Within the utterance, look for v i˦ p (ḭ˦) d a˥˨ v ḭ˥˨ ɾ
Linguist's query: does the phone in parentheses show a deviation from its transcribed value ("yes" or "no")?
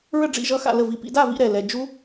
no